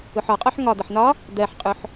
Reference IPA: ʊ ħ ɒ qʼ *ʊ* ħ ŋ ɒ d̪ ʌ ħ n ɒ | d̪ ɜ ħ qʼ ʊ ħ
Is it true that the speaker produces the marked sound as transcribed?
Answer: no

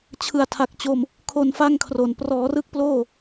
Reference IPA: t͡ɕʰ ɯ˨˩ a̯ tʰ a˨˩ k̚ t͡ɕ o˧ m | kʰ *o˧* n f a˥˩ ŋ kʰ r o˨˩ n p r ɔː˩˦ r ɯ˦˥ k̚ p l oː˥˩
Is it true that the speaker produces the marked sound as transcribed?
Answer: yes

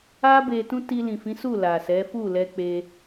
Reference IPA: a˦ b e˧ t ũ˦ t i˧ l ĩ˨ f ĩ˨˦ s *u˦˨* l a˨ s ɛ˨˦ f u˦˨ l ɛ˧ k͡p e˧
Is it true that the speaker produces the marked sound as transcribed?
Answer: yes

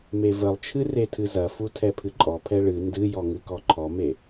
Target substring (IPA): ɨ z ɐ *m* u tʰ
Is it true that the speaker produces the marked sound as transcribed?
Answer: no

